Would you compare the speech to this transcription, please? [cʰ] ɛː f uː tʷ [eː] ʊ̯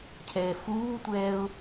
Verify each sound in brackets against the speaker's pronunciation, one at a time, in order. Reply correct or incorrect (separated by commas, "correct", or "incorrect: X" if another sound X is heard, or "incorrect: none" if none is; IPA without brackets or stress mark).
correct, incorrect: ɛː